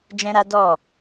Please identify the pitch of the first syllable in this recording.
high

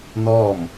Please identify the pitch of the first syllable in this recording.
falling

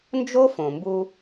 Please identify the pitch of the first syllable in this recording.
high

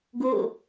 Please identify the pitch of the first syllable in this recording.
falling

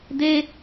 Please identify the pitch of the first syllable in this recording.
high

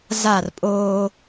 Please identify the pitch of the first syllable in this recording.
falling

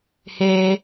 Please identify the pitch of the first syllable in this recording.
high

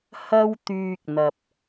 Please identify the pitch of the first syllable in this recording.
high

